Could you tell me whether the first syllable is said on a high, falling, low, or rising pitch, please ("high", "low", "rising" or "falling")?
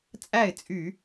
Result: falling